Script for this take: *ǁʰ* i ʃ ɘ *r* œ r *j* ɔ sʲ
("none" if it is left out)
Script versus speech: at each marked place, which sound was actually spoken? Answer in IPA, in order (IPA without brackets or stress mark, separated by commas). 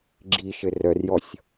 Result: ɡ͡ǁ, r, j